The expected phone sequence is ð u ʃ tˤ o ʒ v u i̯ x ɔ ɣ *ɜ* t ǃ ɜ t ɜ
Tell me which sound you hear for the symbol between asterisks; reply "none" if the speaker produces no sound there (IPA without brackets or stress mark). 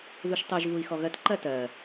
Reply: ɜ